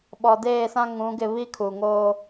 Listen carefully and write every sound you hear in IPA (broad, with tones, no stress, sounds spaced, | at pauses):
ɓ ɔ˨ d eː˦˨ s ã˦ ŋ ũ˨˦ ɡ ɪ˦˨ β i˦ kʰ u˨ ŋ oː˦